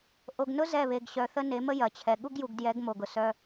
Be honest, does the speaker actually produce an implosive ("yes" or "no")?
yes